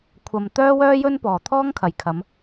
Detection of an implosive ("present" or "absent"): absent